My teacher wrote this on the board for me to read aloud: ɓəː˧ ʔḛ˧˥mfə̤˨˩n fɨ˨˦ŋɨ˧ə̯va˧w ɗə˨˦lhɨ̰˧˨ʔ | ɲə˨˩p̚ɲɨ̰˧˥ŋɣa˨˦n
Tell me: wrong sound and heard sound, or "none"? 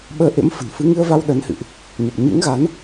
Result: l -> n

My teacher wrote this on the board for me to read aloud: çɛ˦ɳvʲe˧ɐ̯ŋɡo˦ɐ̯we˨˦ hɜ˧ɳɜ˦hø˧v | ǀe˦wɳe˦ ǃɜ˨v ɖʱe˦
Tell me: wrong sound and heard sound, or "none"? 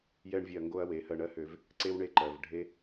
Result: ç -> j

